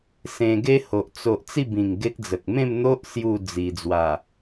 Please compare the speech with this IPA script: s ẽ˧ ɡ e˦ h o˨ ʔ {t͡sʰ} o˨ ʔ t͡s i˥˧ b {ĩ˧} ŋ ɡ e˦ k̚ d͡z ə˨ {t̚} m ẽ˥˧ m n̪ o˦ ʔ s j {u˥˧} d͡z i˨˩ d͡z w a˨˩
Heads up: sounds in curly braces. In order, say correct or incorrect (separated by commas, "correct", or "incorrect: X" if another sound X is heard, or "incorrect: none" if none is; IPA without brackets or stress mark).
incorrect: t͡s, incorrect: ĩ˨˩, incorrect: k̚, correct